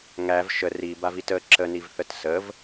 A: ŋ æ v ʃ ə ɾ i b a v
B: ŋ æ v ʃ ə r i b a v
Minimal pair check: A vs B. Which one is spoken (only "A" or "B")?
B